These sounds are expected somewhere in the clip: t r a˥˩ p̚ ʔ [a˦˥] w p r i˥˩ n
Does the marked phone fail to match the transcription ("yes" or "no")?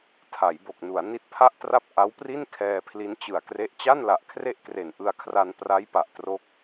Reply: no